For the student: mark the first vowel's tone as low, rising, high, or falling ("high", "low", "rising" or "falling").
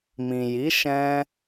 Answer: low